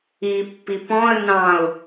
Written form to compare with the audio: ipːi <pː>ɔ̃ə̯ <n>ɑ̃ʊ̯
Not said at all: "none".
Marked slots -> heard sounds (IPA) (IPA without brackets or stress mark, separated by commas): p, n